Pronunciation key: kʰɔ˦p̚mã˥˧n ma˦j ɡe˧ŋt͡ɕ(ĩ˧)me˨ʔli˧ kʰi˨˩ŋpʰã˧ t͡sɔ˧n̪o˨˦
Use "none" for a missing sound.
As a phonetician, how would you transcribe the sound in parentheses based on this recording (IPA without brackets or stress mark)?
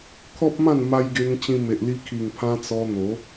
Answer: ĩ˧